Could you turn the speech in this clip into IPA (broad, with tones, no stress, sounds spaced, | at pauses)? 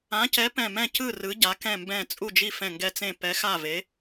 ã˩˧ c ɛ˩˧ p ɛ̃˧˩ m ɛ̃˧˩ c ɯ˧˩ r ɯ˩˧ ɟ a˩˧ k ɛ̃˧˩ m b ɛ̃˧˩ t͡sʼ u˧˩ d͡ʒ i˧˩ f ɛ̃˧˩ ŋ ɡ ɛ˧˩ t͡s ẽ˧˩ p ɛ˩˧ x a˧˩ v e˩˧